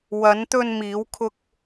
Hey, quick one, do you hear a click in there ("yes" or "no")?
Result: no